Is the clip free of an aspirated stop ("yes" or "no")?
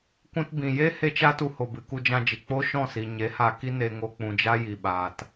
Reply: yes